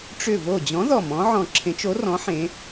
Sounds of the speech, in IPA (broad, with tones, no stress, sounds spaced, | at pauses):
ʈ͡ʂ ʏ˧˩ v o˧˩ d͡ʑ ɔ̃˨˥ ð ɔ˧˩ m ɔ̃˨˥ ʕ ɔ̃˧˩ ǁʰ ẽ˨˥ t͡ʃ o˨˥ r ɔ̃˨˥ ħ ẽ˨˥